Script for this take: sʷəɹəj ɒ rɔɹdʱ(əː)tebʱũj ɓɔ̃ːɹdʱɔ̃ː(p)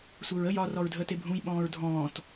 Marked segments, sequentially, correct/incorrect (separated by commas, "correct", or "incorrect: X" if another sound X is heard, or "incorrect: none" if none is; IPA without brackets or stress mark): correct, incorrect: t